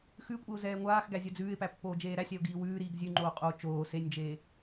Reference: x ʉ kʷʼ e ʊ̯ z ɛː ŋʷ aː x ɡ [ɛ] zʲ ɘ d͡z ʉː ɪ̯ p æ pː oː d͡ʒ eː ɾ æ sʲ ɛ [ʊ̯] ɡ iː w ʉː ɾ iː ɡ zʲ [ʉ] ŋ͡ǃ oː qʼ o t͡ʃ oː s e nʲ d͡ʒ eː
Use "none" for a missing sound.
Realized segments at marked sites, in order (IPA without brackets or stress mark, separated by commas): æ, ʊ̯, ʉ